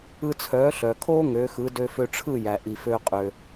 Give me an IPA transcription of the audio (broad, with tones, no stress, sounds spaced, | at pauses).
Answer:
ɯ˧ t͡sʰ œː˩˥ ɬ œ˩ kʰ oː˥ ŋ ø˩˥ x ɯ˩˥ d ø˧ f ø˧ ʈ͡ʂʰ ɯ˥˩ j æ˩ ʔ i˩ f ø˧ qʼ ø˩